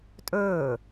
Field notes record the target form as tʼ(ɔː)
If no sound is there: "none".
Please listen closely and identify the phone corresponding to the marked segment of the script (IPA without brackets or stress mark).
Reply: ɵː